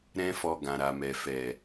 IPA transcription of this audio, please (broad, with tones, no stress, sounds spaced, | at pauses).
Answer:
ɾ ɛ̃˦ f ɔ˧ ɡ ã˨ ɾ a˨ m ɛ˨ f ɛ˨